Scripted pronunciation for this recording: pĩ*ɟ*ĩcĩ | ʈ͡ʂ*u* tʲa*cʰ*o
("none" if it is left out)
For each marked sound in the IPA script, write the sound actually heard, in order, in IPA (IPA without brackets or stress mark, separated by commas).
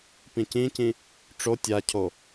c, o, cʰ